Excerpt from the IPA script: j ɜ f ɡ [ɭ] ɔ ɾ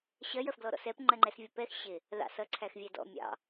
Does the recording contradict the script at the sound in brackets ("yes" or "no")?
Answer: yes